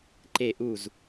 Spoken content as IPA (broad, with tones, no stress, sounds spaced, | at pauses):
ǃ e˧˩ ʔ u˧˩ z